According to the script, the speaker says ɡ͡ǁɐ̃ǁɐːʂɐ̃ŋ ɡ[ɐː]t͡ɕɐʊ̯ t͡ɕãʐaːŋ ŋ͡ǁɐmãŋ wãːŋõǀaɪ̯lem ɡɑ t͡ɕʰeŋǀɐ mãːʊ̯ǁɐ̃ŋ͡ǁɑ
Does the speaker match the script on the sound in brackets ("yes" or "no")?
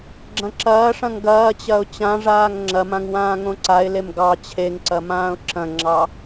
yes